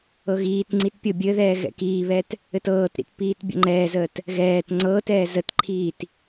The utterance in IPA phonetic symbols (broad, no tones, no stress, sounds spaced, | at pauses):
ɤ ɣ iː t ŋ͡ǀ i t pʲ ɤ bʲ ɘ ð ɛː ɣ ɛ̰ k iː β ɛ t | ɘ t ɤː t ɾ ḭ t p iː t bʲ ə̰ ŋ͡ǃ ɛː z əː t | ɣ ɛː t ŋ͡ǀ ɤː t ɛː z ə t ǃʰ iː t